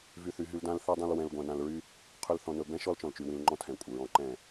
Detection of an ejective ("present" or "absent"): present